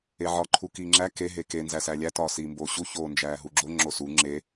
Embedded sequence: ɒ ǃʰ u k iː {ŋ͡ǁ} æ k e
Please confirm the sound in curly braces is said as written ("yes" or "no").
yes